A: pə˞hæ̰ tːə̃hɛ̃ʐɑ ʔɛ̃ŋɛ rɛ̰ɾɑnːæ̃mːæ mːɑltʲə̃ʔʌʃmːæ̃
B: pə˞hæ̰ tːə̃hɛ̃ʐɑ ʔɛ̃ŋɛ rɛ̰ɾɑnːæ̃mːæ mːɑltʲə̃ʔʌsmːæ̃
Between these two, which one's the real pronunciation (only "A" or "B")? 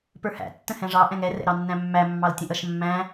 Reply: A